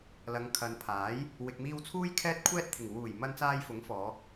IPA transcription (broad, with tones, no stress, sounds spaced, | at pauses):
l ɐ˨ ŋ kʰ ɐ˨ n pʰ aː˨˥ j | w ɪ˨ k̚ m iː˧ w t͡sʰ uː˥ j kʰ ɛː˥ t̚ kʷʰ ɛː˥ t̚ t̪ʰ ɪ˨˩ ŋ w uː˨˩ j m ɐ˧ n t͡s aː˧ j f ʊ˨˥ ŋ f ɔː˨˧